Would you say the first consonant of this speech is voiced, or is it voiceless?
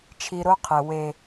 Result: voiceless